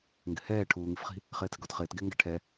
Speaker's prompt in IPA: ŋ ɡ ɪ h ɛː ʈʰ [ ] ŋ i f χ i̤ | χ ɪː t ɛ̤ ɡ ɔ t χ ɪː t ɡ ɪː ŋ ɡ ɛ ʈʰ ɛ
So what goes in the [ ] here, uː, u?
uː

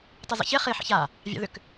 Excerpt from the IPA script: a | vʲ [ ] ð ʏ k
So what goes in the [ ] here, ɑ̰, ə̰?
ɑ̰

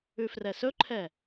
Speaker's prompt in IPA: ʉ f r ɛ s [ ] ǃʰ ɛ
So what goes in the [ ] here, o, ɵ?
ɵ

